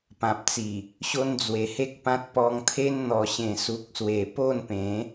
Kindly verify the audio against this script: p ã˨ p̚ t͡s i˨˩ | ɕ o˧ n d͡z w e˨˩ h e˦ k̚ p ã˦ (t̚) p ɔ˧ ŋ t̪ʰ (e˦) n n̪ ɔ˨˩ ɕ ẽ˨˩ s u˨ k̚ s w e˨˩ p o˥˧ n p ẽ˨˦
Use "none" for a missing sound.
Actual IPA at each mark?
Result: t̚, e˦

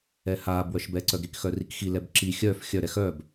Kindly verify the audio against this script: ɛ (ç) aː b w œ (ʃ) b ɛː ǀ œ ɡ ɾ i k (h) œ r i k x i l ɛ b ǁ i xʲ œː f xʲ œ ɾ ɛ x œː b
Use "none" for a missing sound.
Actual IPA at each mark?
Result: h, ʃ, x

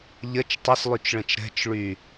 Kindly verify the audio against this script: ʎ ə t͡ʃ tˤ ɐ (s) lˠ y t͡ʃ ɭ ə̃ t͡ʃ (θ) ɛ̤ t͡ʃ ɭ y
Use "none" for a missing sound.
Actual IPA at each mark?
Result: s, ɾ

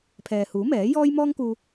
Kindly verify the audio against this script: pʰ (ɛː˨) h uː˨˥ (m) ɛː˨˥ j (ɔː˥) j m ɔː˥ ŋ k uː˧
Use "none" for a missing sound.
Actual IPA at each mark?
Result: ɛː˨, m, ɔː˥

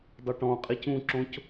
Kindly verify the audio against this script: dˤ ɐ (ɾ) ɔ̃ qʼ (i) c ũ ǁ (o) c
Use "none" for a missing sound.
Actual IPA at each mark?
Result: ʈ, i, õ

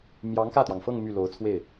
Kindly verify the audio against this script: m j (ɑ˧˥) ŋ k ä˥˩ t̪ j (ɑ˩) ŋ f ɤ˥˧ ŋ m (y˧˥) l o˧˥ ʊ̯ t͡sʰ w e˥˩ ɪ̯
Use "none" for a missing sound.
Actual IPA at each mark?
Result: ɑ˧˥, ɑ˩, y˥˩

